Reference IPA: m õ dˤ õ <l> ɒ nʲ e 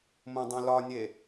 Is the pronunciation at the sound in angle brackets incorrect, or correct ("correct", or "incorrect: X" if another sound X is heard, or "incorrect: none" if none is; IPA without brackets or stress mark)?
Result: correct